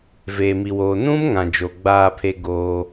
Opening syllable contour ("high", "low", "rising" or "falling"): low